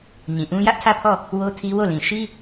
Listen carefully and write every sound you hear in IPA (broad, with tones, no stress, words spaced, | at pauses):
ɲĩ˨ ʔũ˦ jä˦ʔtʰä˦˨pʰɔ˦˨ | wo˦tʰi˦wo˦˨lĩ˨ ʃi˦